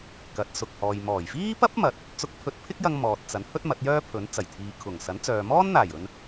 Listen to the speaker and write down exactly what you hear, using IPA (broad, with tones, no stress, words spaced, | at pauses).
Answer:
kɐ˨˥t̚sʊ˨k̚hɔː˨j mɔː˨˩jfiː˥pɐ˥p̚ mɐ˨˥t̚ | t͡sʊ˧k̚pʰɵ˧t̚pʰɪ˥k̚jɐ˧ŋ mɔː˨t̚t͡sɐ˨˥n hɵ˥t̚mɐ˨˥t̚jœː˥pʰɵ˨˥n t͡sɐ˨˩jt̪ʰiː˨kʰʊ˨˩ŋ sɐ˨˥nt͡sœː˨ mɔː˥nn̪aː˨˩jɵ˨n